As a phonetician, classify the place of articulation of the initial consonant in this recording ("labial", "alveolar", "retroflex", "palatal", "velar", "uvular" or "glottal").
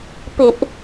labial